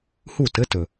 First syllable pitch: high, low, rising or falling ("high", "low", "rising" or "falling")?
falling